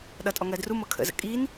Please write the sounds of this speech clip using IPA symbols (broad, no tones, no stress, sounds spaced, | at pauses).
ɗ ʌ tʼ ɔ ŋ ɜ d r u m ɤ kʰ ə̰ z ə̰ kʼ i n